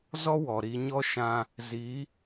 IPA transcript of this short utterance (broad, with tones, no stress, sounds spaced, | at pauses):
z ɔ˦ w ɔ˨ ɾ i˧ ɲ ɔ˦ ʃ ã˧ | z i˨˦